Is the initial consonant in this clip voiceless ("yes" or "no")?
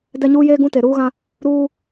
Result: no